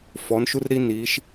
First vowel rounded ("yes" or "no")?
yes